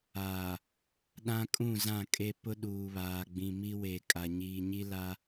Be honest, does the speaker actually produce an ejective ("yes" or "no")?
yes